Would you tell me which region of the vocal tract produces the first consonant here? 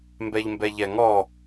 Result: lips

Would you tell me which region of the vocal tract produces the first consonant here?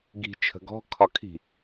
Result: velum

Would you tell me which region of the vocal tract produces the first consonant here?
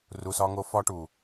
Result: tongue tip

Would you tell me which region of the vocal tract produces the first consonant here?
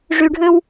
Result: retroflex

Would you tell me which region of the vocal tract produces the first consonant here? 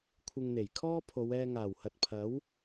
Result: velum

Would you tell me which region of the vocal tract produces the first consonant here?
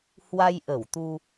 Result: throat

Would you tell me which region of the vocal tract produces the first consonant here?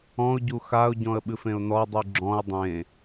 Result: palate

